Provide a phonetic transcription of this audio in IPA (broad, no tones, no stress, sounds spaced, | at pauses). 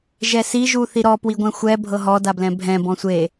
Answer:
ʒ ɛ s i ʒ u θ i ɾ ɔ p w i ɡʷ ɛ̃ xʷ ɛ bʱ ɤ ɦ ɔ d a b l ɛ̃ bʱ ɛ̃ b ɔ̃ sʷ e